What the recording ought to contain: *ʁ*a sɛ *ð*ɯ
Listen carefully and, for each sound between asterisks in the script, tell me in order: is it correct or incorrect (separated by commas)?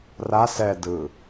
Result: incorrect, incorrect